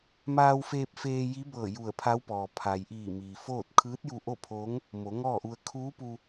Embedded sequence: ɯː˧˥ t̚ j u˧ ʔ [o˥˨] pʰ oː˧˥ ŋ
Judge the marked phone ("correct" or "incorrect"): correct